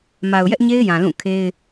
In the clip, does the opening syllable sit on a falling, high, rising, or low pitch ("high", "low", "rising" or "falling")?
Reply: low